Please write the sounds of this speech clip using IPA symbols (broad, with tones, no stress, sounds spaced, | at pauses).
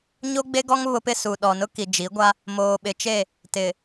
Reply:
ɲ o˦ ɡ͡b e˦ ɡ ɔ˦ ŋ β ʊ˦ p ɪ˦ s u˨ ɗ ɔ˨ n ʊ˦ k i˨ d͡ʒ i˨˦ ɡʷ a˦ | m oː˨ ɓ ɪ˨ t͡ʃ e˦˨ | t ɪ˨